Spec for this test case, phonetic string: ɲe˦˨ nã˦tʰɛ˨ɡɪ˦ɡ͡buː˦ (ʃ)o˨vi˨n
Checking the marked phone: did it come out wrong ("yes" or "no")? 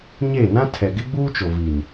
yes